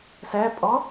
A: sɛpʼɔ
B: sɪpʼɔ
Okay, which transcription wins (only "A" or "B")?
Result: A